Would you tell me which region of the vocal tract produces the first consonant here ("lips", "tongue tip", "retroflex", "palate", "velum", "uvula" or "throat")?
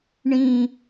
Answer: retroflex